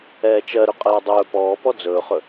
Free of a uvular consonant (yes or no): no